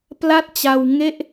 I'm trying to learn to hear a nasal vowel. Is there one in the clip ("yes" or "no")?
no